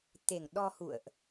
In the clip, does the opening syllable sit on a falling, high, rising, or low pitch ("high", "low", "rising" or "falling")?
low